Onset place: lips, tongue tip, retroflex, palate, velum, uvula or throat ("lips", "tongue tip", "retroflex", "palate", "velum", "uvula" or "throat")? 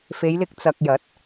lips